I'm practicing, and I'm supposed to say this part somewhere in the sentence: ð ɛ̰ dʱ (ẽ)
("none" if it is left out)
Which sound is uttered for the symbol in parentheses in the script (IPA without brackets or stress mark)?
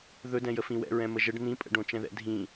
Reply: ĩ